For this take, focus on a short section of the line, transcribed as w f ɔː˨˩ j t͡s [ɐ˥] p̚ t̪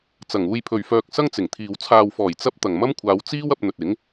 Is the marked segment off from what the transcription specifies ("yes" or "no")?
no